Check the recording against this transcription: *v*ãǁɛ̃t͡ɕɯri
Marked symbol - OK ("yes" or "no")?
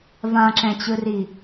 yes